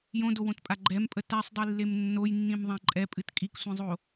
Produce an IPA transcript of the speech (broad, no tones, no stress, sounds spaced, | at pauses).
j õ d o w õ t pʼ a ɡ͡ǃ ɛ m pʼ ə t a sˤ dˤ i lː e m nː o j nː ĩ m ðˤ ã ǃʼ ɛ pʼ ɨ t kʼ i k sʷ ĩ zˤ o